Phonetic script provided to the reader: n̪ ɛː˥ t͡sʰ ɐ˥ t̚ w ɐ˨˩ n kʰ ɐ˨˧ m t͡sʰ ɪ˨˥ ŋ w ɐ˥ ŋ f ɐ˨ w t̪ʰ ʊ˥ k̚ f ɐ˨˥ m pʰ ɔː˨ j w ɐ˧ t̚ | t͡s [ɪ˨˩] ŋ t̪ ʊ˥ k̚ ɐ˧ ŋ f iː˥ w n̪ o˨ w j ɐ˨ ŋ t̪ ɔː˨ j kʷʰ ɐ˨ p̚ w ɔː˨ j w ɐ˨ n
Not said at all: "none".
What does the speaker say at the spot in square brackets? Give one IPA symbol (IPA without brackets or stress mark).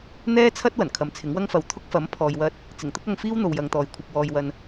ɪ˨˩